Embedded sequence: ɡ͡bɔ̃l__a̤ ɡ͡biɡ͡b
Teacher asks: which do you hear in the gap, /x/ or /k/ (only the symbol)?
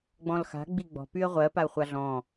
x